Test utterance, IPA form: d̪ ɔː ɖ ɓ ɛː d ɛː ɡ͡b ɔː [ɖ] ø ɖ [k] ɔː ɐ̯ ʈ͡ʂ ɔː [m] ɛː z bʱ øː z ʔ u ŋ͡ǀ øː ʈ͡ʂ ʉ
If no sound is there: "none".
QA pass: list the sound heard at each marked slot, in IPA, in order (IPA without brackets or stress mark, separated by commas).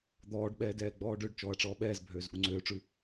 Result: ɖ, t͡ʃ, ɓ